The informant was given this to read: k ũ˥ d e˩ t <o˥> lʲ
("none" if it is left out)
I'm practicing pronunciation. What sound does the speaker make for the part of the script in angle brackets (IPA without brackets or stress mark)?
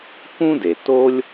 o˥